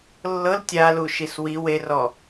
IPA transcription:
lːɤl tʲalu ʃiswi werɔ

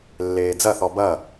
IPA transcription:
lːeːd͡zɐθɔ bɐ

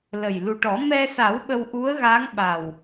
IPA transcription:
lə˨˩j lu˨˩ʈɔ˨˩˦ mɛ˧sa˨˩˦w ɓə˧wʔu˧˥ə̯ɣa˧˥ŋ ɓa˨˩w

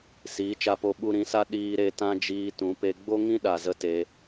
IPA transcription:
siː˨˦t͡ʃa˧po˧ ɓu˧ɾĩ˨˦sa˦ ɗiː˧ɾe˧ tã˦d͡ʒiː˧tũ˨˦pe˧ ɡ͡bo˦ŋĩ˦ɗa˨ zə˦te˧

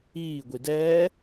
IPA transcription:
iː ɡʷidɛː

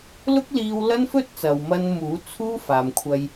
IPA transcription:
lʊ˥k̚liː˧wlɐ˥n fɵ˥t̚t͡sɐ˨wmɐ˧nmuː˨˥ t͡sʰuː˥faː˨mkʷʰɐ˧j

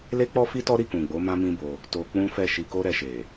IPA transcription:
le˦k͡pɔ˦fi˦ tɔ˦ɾi˦˨kũ˨ɡ͡bo˨˦ mã˦mĩ˦bo˧ | to˧k͡pũ˦fɛ˦˨ ʃi˧ko˦ɾɛ˧ʃe˨

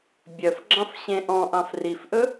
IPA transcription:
bʲœfɡ͡ǁɑ̃f ɕẽʔɔ̃ʔɑ̃f rifʔɵ

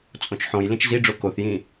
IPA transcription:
t͡sʼõt͡ʃħõj lĩt͡ʃziɖ͡ʐo koθjĩ

